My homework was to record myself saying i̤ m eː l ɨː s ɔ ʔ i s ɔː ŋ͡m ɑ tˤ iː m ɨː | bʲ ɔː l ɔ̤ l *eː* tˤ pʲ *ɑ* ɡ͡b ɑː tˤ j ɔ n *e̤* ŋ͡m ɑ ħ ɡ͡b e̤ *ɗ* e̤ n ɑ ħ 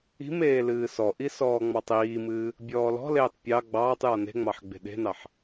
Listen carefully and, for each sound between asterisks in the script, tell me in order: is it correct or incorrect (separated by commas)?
correct, correct, correct, correct